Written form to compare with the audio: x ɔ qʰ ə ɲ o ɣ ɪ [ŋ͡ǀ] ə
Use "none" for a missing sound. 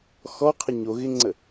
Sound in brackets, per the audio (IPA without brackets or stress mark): ŋ͡ǀ